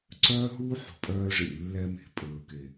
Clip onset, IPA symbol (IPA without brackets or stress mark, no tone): ǀ